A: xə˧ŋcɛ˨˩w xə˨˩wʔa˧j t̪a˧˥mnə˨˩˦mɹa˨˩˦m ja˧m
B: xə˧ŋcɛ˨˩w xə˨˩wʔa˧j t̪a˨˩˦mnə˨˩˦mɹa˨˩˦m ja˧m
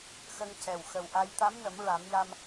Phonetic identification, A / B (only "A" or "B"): A